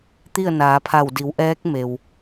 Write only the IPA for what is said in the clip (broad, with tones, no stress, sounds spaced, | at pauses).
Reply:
t̪ i˥˨ ə̯ n aː˩˧ pʰ a˧˩ w d i˩˧ w ʔ ɛː˧˥ k̚ m e˩ w